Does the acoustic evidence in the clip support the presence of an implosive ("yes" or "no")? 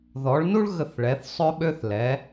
yes